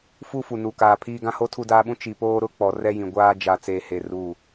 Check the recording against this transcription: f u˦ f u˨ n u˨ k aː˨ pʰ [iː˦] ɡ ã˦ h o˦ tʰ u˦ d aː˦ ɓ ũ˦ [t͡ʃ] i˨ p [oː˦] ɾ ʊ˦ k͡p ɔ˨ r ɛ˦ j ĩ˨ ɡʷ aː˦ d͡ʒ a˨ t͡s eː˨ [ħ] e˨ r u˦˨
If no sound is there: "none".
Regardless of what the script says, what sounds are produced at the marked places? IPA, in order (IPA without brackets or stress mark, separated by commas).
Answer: iː˦, t͡ʃ, oː˦, h